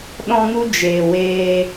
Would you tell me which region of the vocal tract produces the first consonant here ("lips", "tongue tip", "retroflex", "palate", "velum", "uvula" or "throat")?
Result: tongue tip